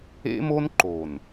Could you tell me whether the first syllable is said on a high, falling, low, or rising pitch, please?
high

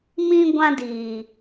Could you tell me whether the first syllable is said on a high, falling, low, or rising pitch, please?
high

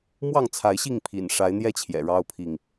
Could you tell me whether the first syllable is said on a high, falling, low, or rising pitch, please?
falling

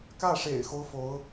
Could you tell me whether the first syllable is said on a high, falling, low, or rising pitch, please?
falling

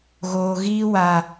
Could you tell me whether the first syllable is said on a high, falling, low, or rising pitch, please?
low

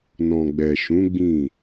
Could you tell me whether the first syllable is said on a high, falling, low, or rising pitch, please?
low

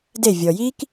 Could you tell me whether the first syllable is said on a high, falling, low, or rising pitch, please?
falling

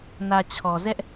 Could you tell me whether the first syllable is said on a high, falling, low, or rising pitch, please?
low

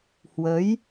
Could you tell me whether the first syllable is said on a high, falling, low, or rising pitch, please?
rising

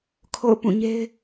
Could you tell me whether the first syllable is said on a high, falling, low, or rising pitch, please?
falling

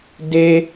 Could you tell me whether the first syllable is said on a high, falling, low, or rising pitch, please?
high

